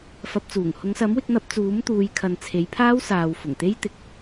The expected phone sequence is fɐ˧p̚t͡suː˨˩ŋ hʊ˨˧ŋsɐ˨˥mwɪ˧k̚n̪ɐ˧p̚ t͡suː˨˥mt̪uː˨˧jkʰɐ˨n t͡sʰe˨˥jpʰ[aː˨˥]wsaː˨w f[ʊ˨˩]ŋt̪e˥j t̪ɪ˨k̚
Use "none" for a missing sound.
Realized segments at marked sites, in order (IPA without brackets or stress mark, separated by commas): aː˥, ʊ˨˩